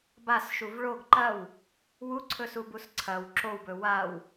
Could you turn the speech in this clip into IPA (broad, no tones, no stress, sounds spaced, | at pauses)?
b a s ʃ u v ɭ o ɡ ǃ ɐ w | w u ǀʰ ɵ s u b u s ǀʰ ɐ w ǁ o w b ɵ w a w